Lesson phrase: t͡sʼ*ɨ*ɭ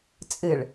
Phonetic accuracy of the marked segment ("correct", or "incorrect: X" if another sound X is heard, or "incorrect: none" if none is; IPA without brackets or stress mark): correct